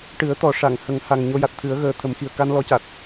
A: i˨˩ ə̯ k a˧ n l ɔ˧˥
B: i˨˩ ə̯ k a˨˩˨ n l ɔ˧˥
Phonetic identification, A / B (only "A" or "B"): A